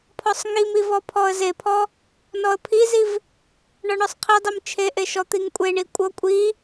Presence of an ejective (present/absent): present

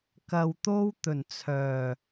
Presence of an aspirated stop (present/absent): present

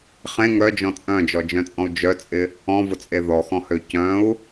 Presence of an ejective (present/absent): present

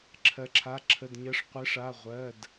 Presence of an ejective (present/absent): absent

